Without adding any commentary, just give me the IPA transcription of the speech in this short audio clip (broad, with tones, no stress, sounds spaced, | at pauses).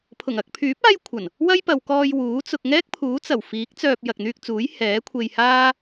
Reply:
pʰ ʊ˨˩ ŋ ɐ˧ k̚ pʰ yː˨˥ p̚ aː˥ j kʷʰ ɐ˨˩ n | w ɐ˥ j p ɐ˨ w k ɔː˧ j w uː˨˥ t͡s ʊ˧ k̚ ŋ ɛː˥ k̚ pʰ uː˨˥ t͡s ɐ˨˩ w f iː˨˥ k̚ t͡s œː˧ p̚ j ɐ˨ k̚ n̪ yː˧ k̚ t͡s uː˨˥ j h ɛː˨˥ kʷʰ e˧ j h aː˥